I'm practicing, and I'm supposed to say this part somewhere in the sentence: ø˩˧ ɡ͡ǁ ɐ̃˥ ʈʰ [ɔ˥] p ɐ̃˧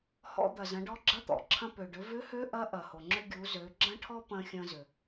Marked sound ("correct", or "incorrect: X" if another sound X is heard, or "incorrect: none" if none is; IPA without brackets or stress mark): correct